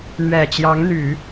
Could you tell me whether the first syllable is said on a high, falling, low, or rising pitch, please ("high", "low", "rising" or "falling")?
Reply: low